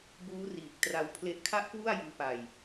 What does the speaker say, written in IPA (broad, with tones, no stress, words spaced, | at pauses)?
buː˦˥ riː˨˩k̚ tra˧wpʰle˦˥ʔkʰa˥˩ʔkwu˥˩a̯ jɯː˦˥pa˧j